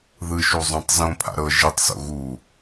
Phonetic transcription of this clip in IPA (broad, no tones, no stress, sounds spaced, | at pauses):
ð ɯ ʃ u zˤ õ tˤ z õ pʰ a̰ ɾ ɤ ʒ i tˤ s o̰ ɣ u